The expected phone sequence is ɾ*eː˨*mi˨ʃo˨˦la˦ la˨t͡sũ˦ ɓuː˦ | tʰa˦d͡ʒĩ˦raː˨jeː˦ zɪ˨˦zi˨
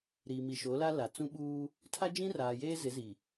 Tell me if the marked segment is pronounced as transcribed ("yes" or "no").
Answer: no